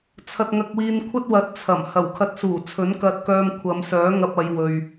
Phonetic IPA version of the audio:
t͡sʰ ɐ˧ t̚ ŋ ɐ˧ k̚ w iː˧ n kʷʰ ɐ˥ t̚ w ɐ˨˥ t̚ t͡sʰ ɐ˨˩ m h ɐ˨˩ w kʰ ɐ˧ t̚ s uː˨˩ t͡sʰ ɵ˨˥ n k ɐ˧ t̚ k œː˧ m kʷʰ ɐ˨˧ m s œː˨˥ ŋ ɐ˧ p̚ ɐ˨˧ j w ɵ˨ ɥ

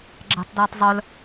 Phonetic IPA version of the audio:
ɡ͡ǁ ɛ̤ tˤ d j ɛ tˤ zˤ œ l

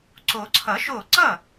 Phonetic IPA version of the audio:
ǀ o˨˩˦ ǀʰ ʌ˨˩˦ ʃ o˧˩ ǀ ʌ˥˩

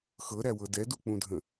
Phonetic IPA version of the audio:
x ɤ ɾ æ w ɤ d ɛ d u k͡p ũ dʱ ə̃

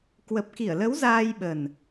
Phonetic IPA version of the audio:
k w ə˨˩ p̚ k i˧˩ ə̯ l ə˨˦ w z aː˧ j ɓ ə˨˩ n

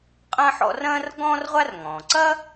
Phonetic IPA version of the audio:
qʼ ɐ̃˥ ħ ɔ̰˦ r ɐ̃ː˥ r ɡ ɔ̃ː˥ r ʁʷ a˥ r ŋ ɔ̃ː˩ ǀ ɐ˥

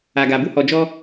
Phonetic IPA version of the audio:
a˨ ɡ a˨ b u˧ h ɔ˨ d͡ʒ ɔ˧

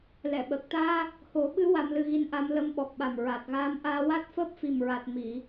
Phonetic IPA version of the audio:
l ɛ˨˩˨ ɓ əː˨˩ k̚ t̪ aː˧ | h o˨˩˦ ɓ ɨ˧˥ w a˧ m l ɨ˧ ɣ i˧˥ n ʔ a˧˥ m l ə˧˥ m ɓ ɔ˨˩ k̚ ɓ a˨˩ m ɹ a˨˩ t̚ ɣ aː˧˥ m ʔ aː˧ w a˦˥ t̚ f əː˦˥ p̚ f i˨˩ m ɹ a˨˩ t̚ m i˨˩˨

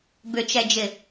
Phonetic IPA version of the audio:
b ʏ t͡ʃ ɛ d͡ʒ ɪ

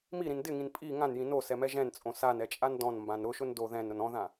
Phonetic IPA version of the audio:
m i ɾ ĩ n d ɪ ŋ ĩ n pʼ i ŋ ã n j ĩ n o s ɛ m ɛ ʒ ɛ̃ n t͡sʼ õ s a n ɛ t͡ʃʼ a n d ɔ̃ n m b ã n ɾ ʊ ʃ ʊ n d o ð ɛ̃ n ɾ ʊ n ɔ̃ ð ã

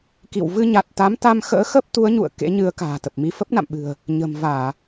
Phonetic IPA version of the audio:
k ḭ˧˨ w v ɨ˧ ɲ a˨˩ t̚ t̪ a˨˦ m t̪ a˧ m x ə̰ː˧˥ x ə˦˥ p̚ t̪ u˨˦ ə̯ ɲ ṵ˧˨ ə̯ k ḛ˧˥ ɲ ɨ˨˦ ə̯ k a̤ː˨˩ t̪ ə˨˩ p̚ m i˧ f ə˦˥ p̚ n a̰˧˨ m ɓ ɨ̤˨˩ ə̯ | ɲ ə̤˨˩ m v aː˧˩˨

